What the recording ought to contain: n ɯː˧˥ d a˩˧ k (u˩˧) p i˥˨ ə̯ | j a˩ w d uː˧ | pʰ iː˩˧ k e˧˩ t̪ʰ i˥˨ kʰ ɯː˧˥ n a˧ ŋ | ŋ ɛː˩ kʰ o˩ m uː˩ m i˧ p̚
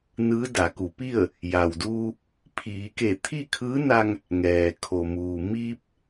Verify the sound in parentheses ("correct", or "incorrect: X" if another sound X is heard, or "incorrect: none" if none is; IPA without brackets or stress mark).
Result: correct